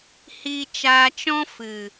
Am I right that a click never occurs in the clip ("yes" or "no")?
yes